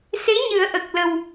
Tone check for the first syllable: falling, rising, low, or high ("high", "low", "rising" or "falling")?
rising